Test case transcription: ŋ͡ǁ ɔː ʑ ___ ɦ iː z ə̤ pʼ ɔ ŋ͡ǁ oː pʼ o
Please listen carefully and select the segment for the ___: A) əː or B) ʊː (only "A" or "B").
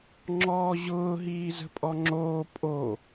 B